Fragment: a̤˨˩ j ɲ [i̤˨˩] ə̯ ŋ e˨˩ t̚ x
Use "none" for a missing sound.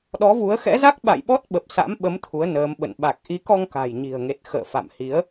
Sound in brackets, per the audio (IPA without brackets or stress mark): i̤˨˩